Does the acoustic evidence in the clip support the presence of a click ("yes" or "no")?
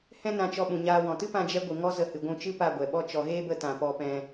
no